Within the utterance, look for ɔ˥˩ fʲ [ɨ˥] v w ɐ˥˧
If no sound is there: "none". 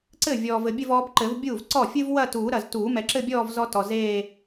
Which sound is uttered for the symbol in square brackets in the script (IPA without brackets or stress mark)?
ɨ˥